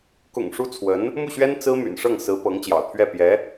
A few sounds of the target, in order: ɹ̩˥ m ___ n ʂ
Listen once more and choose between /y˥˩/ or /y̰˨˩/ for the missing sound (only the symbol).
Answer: y̰˨˩